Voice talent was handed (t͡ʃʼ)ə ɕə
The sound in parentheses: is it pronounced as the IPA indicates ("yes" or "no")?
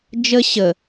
no